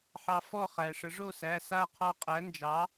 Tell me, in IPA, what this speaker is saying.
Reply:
ħ ɑ˧ f ɔ˥˨ χ æ˩ ʂ ə˨˩˦ ʐ o˥˨ s æ˩˧˩ s a˥˨ qʰ ɔ˧ qʼ æ˩˥ n d͡ʒ ɑ˩˥

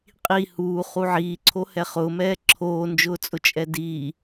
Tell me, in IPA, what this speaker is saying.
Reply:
qʼ i h uː χ u ʕ iː ǀʰ o h ɛ χ ʊː m ɛː ǁʰ oː n d͡ʒ ʊː t͡sʼ ʊ t͡ʃʼ ɛ d iː

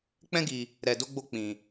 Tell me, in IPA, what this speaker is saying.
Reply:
k͡p ɛ̃˦ ɡ i˧ | ɾ ɛ˧ d o˦ ɡ͡b o˦ k͡p ĩ˧

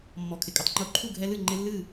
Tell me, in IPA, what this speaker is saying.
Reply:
mː ɔ˧˩ kʰ ɪ˧˩ kʼ ɪ˦ tˤ ŋ͡ǃ o˥˨ ǃʰ u˥˨ ɡʱ ɛ˦ l ɨ˥˨ ŋ͡ǃ ɪ˦ lː ɨ˥˨

